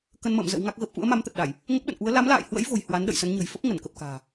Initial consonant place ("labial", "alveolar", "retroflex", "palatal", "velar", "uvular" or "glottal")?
velar